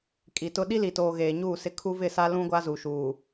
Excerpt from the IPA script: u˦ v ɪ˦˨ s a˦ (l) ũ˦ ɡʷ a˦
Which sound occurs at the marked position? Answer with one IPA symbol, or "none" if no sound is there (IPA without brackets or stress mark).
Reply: l